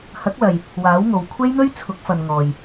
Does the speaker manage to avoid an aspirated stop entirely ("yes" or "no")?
no